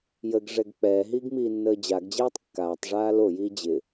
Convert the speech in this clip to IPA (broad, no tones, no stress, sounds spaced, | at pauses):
j ə ɡ ʐ ɛ ɡ k͡p ɛː ɦ iː ɡ m iː nː əː d͡ʑ a ɡ d͡ʑ ɛː tˤ kː aː tˤ ʐ aː l o j iː d͡ʑ ɪ